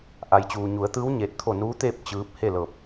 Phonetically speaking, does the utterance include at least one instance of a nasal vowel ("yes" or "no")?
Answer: no